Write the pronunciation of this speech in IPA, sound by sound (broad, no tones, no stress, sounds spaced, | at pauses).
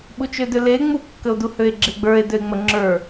ɓ u t͡ʃ ø d ø l e ŋ͡m u kː ə o̯ d u h ø e̯ ɡ͡ǁ e ɡ͡b ə˞ e̯ d ø e̯ ŋ͡m ə ŋ͡ǁ ə˞